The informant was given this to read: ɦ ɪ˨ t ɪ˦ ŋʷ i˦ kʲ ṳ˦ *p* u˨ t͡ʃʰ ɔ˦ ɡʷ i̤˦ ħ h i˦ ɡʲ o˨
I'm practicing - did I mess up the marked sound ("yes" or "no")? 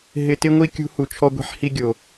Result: yes